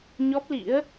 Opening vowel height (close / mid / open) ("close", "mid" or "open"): mid